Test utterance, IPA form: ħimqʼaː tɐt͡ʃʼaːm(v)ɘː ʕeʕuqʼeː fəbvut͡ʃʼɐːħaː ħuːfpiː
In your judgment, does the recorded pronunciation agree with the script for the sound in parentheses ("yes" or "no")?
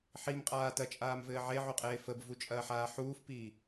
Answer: yes